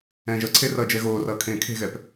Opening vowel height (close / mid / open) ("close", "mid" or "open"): mid